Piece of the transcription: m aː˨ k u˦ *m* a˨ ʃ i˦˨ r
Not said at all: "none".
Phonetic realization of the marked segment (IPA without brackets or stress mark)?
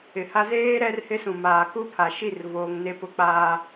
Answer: pʰ